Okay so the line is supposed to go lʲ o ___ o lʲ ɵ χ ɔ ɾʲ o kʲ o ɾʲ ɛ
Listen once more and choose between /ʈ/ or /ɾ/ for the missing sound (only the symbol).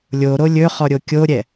ɾ